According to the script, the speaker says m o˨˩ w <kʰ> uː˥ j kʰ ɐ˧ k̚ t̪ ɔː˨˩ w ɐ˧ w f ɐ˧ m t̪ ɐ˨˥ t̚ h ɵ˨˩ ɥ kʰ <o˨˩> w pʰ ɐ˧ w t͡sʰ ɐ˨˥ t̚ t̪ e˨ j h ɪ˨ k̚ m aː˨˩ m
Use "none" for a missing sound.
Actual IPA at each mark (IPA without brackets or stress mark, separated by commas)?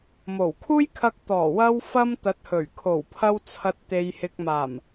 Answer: kʰ, o˨˩